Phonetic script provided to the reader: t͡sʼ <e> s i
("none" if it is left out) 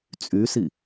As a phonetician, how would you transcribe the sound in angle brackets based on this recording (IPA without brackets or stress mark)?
y